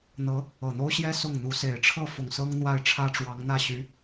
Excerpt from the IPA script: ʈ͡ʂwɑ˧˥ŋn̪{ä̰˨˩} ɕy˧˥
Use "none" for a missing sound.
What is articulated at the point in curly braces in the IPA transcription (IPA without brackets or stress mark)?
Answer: ä˥˩